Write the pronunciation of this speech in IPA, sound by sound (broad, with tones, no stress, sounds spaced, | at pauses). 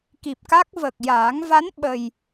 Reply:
k i˨˩ p̚ k a˦˥ k̚ v ə˨˩ k̚ j aː˨˩˦ ŋ v a˧˥ n ɓ ə˨˩ j